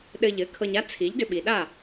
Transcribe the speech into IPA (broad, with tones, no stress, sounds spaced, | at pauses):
ɗ ɘ˧ ʎ ɘ˩˥ kʰ ɤ˧ ɲ a˥ t͡sʰ i˩˥ ʎ d ʏ˧ ɓ i˩ ɗ a˥˩